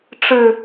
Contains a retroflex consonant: yes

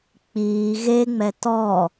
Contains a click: no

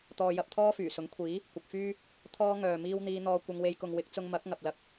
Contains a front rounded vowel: yes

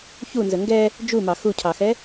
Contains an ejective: no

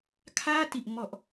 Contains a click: no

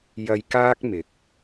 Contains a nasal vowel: no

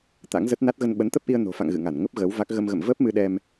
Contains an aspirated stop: no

